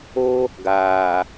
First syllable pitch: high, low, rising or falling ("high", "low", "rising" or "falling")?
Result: high